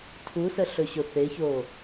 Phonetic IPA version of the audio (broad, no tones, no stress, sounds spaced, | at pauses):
tʰ u s ə ɬ ɵ ɕ ʊ θ e ç o